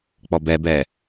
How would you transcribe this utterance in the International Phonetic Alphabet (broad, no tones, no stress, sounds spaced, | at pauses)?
k͡p ɔ b ɛ b ɛ